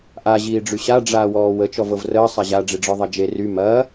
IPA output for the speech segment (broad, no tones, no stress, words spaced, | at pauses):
ʔa ʑiːɖ͡ʐyɕa ɖ͡ʐaːwɔːwə t͡ʃɔvɤvrəː sˤaʑa ɖ͡ʐiɖ͡ʐɔðˤɐd͡ʒe ry mɐː